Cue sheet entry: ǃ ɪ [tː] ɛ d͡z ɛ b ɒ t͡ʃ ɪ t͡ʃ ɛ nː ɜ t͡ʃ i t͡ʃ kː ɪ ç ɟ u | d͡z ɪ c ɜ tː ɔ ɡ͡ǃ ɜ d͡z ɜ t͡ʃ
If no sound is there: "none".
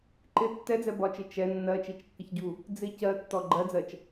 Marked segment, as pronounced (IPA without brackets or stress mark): tː